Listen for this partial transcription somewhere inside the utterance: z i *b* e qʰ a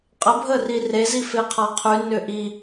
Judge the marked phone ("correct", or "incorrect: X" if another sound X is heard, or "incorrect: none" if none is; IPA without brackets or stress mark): incorrect: f